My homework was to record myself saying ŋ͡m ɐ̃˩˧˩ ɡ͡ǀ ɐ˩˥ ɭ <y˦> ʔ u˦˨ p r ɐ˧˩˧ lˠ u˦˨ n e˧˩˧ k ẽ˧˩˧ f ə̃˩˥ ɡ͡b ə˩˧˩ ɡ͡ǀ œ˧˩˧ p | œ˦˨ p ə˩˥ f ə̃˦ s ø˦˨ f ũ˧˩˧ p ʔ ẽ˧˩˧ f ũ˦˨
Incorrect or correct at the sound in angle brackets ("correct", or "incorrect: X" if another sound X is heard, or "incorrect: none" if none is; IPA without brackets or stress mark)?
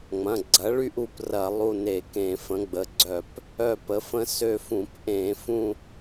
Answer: correct